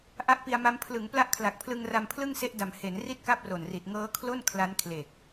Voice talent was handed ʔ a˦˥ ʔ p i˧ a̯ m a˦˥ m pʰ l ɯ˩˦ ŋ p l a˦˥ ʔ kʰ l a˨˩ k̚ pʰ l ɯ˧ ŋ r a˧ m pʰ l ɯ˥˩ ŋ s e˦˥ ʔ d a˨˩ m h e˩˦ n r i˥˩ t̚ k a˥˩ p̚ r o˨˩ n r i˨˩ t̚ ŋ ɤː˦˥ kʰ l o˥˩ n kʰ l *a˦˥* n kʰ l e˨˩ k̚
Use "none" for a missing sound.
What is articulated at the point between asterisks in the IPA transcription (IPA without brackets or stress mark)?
a˦˥